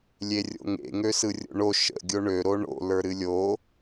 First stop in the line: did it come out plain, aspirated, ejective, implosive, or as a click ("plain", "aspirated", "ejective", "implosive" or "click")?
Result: plain